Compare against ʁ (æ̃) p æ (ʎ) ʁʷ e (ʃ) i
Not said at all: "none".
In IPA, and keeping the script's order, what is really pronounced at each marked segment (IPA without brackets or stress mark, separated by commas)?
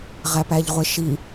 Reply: æ, ʎ, ʃ